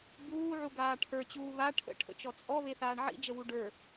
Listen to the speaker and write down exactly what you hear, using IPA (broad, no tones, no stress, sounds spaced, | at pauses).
b uː ʕ u ɡ aː ʈʰ ə˞ t͡ɕ uː β a ʈʰ ə̰ ʈʰ ə̰ t͡ʃ ɔ t͡sʼ ɔ β e θ aː ɳ ʕ ḭ d͡ʒ ə w u ɖ ə˞